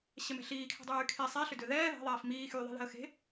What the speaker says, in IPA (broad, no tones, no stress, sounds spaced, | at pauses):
ɕ ɛ m ɛ̤ ɬ iː kʰ ɛ̤ dˤ yː kʰ e sˤ e ɬ ʏ d ʏ ð ɛː ð ɛ̤ ðˤ ɛː f m iː x yː ðˤ e̤ ð ɛ̤ ə̯ x e̤